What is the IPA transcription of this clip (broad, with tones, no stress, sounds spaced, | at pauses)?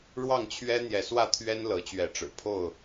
ɻ w ɑ˥˨ ŋ t͡ɕʰ ɥ ɛ˦ n̪ j ɛ˨˦ s w ä˥˨ t̪ʰ ɥ ɛ˦ n l ɤ˨˦ t͡ɕ ɥ ɛ˨˦ ʈ͡ʂ ɻ̩˨˩ pʰ o˥˨ ʊ̯